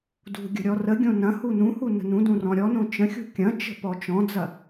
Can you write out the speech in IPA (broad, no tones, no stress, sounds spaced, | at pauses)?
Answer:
d ṳ ɡʲ ə̤ ɾʲ ɔ r ə ɡʲ õ n ɐ̃ h u n ũ h u n ə̤ n ũ d ũ r ɔ̃ ɾʲ ɔ n õ t͡ʃ ə̃ xʲ ṳ kʲ ɐ̃ t͡ʃ ə̤ p ɔ t͡ʃ ɔ̃ d͡z ɐ